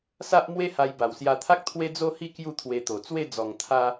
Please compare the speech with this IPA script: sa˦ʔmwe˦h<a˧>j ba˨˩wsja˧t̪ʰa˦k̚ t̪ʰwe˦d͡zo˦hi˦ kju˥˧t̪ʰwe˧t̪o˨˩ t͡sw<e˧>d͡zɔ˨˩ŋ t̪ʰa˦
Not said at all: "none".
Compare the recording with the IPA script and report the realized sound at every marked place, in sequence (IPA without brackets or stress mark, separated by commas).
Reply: a˧, e˥˧